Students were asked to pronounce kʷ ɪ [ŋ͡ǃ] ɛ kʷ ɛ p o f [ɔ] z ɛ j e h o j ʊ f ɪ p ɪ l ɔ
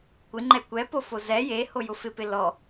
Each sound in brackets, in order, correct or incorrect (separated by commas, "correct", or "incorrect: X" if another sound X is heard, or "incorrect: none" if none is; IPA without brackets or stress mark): correct, incorrect: o